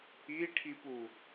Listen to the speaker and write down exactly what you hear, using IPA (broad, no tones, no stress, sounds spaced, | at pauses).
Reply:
i ʈʰ i p u